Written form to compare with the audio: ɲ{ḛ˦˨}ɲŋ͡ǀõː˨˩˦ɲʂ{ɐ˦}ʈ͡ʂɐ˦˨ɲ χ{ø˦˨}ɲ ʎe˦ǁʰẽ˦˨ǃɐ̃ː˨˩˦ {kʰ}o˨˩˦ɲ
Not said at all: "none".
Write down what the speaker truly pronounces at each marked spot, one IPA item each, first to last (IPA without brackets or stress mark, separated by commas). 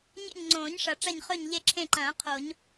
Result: ḛ˦˨, ɐ˨˩˦, ɵ˦˨, qʰ